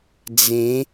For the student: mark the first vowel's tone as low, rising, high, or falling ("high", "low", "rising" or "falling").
rising